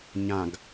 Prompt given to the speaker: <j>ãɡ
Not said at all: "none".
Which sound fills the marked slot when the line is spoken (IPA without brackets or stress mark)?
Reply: ɲ